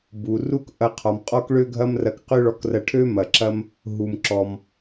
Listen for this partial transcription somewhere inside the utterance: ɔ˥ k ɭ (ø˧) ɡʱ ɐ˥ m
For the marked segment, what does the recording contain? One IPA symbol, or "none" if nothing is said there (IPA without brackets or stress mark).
ø˥